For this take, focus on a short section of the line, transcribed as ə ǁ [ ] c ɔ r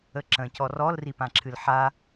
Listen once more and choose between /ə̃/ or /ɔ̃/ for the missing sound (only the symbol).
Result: ə̃